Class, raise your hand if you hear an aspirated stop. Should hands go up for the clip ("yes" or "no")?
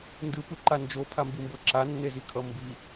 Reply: yes